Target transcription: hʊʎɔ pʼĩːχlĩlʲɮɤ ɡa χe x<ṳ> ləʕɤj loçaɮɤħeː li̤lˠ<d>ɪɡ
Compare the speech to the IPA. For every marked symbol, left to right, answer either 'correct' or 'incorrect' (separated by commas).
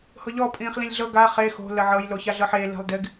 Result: incorrect, correct